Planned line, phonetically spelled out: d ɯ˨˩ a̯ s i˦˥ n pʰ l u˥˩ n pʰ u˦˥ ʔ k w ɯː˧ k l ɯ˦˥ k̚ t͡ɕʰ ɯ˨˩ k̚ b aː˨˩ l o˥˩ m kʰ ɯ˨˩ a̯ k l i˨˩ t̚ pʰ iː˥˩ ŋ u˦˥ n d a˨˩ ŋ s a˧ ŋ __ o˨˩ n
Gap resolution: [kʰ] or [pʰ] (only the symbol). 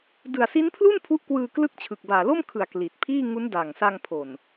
pʰ